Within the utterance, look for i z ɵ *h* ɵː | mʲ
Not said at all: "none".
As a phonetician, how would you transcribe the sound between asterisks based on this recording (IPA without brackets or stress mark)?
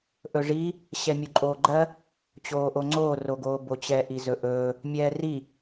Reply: ʔ